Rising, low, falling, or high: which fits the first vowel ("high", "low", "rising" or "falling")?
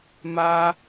high